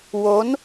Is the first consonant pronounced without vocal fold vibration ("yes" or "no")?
no